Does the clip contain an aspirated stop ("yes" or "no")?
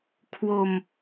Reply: yes